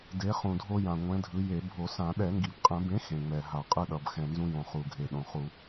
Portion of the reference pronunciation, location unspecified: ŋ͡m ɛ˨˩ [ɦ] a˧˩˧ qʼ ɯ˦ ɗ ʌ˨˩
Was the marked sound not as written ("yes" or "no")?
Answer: no